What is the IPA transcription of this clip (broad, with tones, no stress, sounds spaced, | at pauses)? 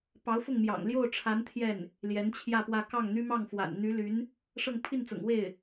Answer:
p ɑ˧˥ ʊ̯ f ʊ˥˩ ŋ m j ɑ̰˨˩ ŋ l j o˥˩ ʊ̯ ʈ͡ʂʰ a˧˥ n t̪ʰ j ɛ˥˩ n | l j ɛ˧˥ n t͡ɕʰ j ä˥˧ p w ä˥˧ k ɑ˥˩ ŋ n̪ y˥ m ɑ˥˩ ŋ f w a̰˨˩ n n̪ y˧˥ l y˧˥ n | ʂ ɤ˥˧ ŋ pʰ i˥˩ n t͡s ʊ̰˨˩ ŋ w e˥˩ ɪ̯